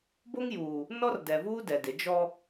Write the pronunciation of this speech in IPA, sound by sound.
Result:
bo˦ŋjuː˨ | nɔ˦r dɛ˨vuː˦ dɛ˨dɪ˨˦ d͡ʒɔ˦

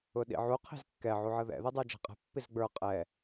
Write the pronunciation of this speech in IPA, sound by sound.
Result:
ʊɗḭʕu qʰi̤zkːɛ ʕuʕəðɛ̰ ðidˤə˞d͡ʒɛ̤qʼɛ̤ pːizɡ͡bə˞ qʼɛ

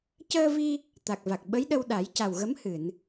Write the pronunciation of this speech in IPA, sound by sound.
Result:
cəː˧vi˧ | t̪a˨˩k̚va˨˩k̚ ɓə˧˥jɗə˧wɗa˨˩˦j ca˨˩wɣə˧˥mhɨ˨˩˨n

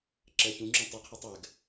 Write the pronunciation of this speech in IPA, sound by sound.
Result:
ǁɜçũŋ͡ǁũ tˤuqʰɜtˤ ɜɡ

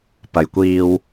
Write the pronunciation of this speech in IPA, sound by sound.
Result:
pɐ˨jkʷiː˧w

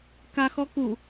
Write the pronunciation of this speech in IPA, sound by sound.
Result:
kaxɔ ku

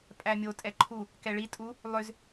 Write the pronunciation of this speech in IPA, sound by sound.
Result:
pʼæmʲo tʼɛǃʰu | kɛɭi tʼu | lˠʏz

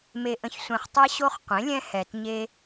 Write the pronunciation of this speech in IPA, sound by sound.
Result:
me˨ʔə̃˨çsʷẽ˨χtˤɛ˦ ɕo˦χqʷẽ˩˥lʲɛ̃˦ hɛ˨t ɲe˦

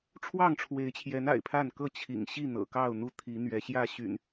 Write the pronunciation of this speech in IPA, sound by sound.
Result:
ʈ͡ʂʰwɑ˥˨ŋʈ͡ʂʰwe˨˦ɪ̯t͡ɕʰjɛ˨˦n a̰˨˩ɪ̯pʰa˥˨n kɤ˥˨t͡ɕʰḭ˨˩ŋɕi˥˨ n̪ɤ̰˨˩kɑ˥˨ʊ̯n̪u˥˨ t̪ʰi˨˦ n̪ɥɛ˨˦ɕjä˥˨ɕy̰˨˩n

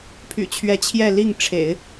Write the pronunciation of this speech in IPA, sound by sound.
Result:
pʰy̰˨˩t͡ɕʰɥɛ˧˥ t͡ɕʰjɛ˥˧li˥˩ŋʈ͡ʂʰḛ˨˩˦ɪ̯

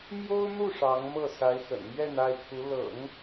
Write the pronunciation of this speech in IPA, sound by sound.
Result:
mjo˥ʊ̯n̪u˥˩ ʂɑ˧˥ŋmɤ˥˩ sa˧˥ɪ̯xə̰˨˩nmɥɛ˥˧n a˥˩ɪ̯t̪ʰu˧˥ lɤ̰˨˩˦ŋ

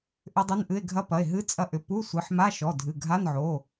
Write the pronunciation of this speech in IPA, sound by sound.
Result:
ʔʏ˧˥dˤʏ˧˥˧nʔɨ˧˥˧e̯ ɡʱɐ˧˥pɐ˩˧˩e̯ ɦɨ˧˥˧t͡sʼɐ˧˥ʔʏ˩˧˩ pu˧˥˧sʷɨ˩˧˩ħma˧˥˧ ʃɔ˩˧˩dʱɨ˩˧˩ɡʱa˧˥˧nʕo˩˧˩

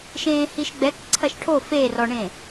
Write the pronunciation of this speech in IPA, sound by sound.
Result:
ʃẽːhiʃɡ͡bɛk ǀʰɐʃʈʰo ferɔɳẽ

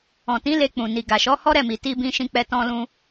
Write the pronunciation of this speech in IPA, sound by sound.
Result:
ɔ̃˨tĩ˨˦ le˧k͡pũ˨ ni˨ɡa˨ʃɔ˨˦ hɔ˦ɾɛ˦˨mi˨ ti˧bĩ˧ʃĩ˧k͡pɛ˧ tɔ̃˧lũ˧

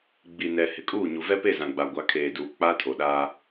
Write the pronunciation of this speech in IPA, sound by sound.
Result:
ɡ͡bi˨nɛ˨ hɪ˨kʼuː˦˨ɲu˨ vɛ˦pe˦˨zã˨ɡ͡ba˨ ɡʷa˨˦kʰeː˨duː˨ k͡pa˦tʰo˨ɗaː˦

